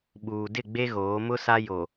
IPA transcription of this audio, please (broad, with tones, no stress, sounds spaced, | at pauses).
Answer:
ɓ uː˨ d ɪ˦˨ ɡ͡b e˦ ɣ oː˨˦ m ʊ˦ s a˦ j o˨